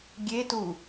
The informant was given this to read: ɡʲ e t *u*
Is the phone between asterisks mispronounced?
no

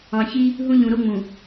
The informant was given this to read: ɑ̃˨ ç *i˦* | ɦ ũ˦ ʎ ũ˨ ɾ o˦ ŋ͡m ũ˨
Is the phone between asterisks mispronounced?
no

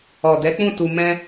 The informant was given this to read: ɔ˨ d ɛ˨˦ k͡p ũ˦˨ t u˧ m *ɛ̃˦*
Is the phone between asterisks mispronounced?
no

